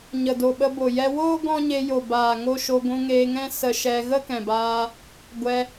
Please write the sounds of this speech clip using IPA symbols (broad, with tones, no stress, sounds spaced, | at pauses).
ɲ ə˨ d o˨ ɓ ə˧ b o˨ j ɛ˧ w oː˦ ɡ ɔ̃˦ ɲ e˧ j o˨ b aː˨ ŋ o˧ ʃ o˧ ɡʷ ũ˧ ŋ eː˧ ŋ ɛ̃˦ s ə˧ ʃ ɛ˧ ɣ ə˦ k ɛ̃˨ b aː˧ | ɡʷ ɛ˧